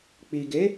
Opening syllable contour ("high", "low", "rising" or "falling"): low